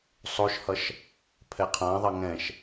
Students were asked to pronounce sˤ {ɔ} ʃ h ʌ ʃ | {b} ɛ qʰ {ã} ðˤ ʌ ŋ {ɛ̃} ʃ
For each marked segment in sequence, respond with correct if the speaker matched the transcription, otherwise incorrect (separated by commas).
incorrect, incorrect, correct, correct